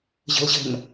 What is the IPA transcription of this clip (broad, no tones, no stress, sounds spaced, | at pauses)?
ʑ ə̤ l ʑ ə̤ n